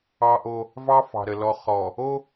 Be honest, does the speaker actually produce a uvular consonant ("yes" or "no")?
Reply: yes